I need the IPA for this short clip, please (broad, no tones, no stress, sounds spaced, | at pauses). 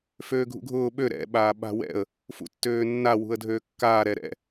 f øː ɡʱ ṵ ɡʱ ʊː ɓ ø ɾ ɛ̰ ɓ aː ɓ a̤ w ɛ̰ ə̯ | f ṵ tː øː nː a w ṳ ə̯ dʱ øː kː aː ɾ ɛ ɾ ɛ̰